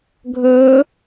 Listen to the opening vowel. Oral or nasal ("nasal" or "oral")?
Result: oral